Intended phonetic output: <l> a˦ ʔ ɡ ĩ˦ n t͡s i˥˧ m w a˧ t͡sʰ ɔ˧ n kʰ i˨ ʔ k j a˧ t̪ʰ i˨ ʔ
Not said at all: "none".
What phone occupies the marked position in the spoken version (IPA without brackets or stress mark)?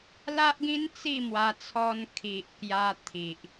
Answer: l